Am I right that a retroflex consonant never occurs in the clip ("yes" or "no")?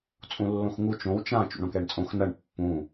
no